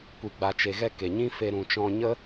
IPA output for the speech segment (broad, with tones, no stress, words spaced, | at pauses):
kʷi˨ɡ͡ba˨t͡ʃe˨ɣɛ˧ ke˨ɲĩ˦fe˧ ɾũ˨t͡ʃɔ̃˧ ɲə˦